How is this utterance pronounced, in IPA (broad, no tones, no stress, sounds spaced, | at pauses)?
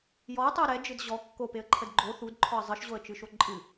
j ɔ ə̯ tˤ ɨ ə̯ ɾ ɛ d͡ʒ ɨ d ʑ ɔ kː o p e ə̯ ǃʰ ə d ɡ͡ǃ o θ u d ǃʰ ɔ ə̯ zˤ ɨ ʃ ʑ o ə̯ t͡ʃ ɨ ʃ o ǃʼ ɨ